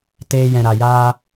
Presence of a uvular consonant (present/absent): absent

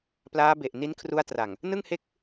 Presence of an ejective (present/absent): absent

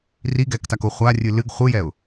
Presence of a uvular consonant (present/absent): present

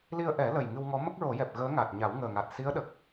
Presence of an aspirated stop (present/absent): absent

